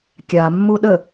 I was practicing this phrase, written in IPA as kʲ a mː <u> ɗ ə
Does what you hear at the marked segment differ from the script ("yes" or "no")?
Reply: no